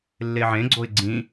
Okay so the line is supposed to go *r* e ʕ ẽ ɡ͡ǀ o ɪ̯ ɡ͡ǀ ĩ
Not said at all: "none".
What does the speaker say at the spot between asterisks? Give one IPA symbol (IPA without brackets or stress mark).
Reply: lː